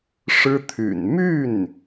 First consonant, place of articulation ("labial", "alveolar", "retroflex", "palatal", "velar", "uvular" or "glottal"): retroflex